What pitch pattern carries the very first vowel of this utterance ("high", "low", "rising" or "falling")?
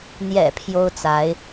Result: low